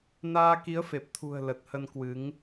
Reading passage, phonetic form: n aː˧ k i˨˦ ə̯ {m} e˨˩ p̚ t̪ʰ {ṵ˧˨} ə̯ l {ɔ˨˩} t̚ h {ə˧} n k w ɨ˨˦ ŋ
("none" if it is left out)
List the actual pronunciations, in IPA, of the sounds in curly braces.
f, ṳ˨˩, ə˨˩, ə˧

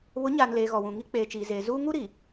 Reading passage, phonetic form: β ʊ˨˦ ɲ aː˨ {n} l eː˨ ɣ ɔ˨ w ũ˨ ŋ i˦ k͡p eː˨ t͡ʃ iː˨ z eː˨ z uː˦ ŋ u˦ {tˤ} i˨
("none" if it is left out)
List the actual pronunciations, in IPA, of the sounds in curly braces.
n, ɾ

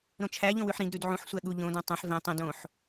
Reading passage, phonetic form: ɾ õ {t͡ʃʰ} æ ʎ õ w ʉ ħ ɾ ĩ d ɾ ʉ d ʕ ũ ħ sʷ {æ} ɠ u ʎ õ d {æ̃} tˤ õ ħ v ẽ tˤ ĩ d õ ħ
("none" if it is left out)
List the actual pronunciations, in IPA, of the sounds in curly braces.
t͡ʃʰ, æ, æ̃

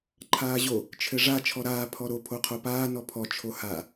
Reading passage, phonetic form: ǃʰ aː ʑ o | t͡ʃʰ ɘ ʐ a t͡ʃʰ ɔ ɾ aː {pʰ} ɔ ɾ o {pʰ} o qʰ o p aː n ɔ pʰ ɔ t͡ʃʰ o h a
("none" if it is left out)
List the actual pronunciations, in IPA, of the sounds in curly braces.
pʰ, pʰ

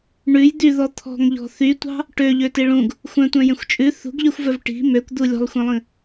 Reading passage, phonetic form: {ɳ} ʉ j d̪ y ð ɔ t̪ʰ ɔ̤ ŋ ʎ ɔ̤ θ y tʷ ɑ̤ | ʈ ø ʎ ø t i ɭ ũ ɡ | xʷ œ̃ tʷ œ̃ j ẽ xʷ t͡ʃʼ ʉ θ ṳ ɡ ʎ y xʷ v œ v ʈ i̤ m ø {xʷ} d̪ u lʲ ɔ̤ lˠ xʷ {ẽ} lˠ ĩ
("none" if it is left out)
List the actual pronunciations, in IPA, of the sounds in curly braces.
ɳ, kʷ, ẽ

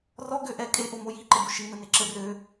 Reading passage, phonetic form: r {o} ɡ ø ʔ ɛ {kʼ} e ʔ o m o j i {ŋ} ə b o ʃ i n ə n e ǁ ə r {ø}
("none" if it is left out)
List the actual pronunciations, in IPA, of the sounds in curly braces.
ɔ, kʼ, ǃ, ø

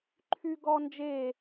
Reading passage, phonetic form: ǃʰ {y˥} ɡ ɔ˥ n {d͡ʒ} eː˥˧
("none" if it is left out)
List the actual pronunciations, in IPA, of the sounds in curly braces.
y˥, d͡ʒ

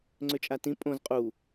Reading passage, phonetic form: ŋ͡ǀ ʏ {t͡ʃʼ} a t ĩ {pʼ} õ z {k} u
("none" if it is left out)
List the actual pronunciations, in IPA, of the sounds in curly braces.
t͡ʃʼ, pʼ, qʼ

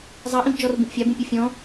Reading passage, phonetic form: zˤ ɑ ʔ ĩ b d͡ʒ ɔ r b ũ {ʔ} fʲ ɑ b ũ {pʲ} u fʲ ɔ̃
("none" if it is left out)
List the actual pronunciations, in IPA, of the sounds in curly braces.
ʔ, pʲ

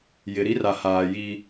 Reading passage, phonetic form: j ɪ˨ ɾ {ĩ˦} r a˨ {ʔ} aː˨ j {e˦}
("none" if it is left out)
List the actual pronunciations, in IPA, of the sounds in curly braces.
i˦, h, i˦

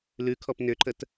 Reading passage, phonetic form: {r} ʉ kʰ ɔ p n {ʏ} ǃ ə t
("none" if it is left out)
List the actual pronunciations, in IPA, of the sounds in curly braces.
l, ʏ

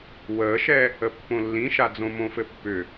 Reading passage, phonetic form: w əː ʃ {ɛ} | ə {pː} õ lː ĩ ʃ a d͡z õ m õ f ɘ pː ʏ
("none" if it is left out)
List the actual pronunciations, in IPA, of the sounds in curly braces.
ɛ, pː

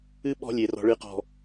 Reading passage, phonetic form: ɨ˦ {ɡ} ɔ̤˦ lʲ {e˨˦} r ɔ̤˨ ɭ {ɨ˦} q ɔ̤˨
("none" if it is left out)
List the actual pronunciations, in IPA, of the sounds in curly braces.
ɓ, e˨, ɨ˨

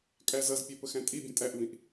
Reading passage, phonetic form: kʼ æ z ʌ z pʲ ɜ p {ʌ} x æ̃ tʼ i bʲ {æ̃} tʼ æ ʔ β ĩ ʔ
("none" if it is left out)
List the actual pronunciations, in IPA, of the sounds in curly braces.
ə, ə̃

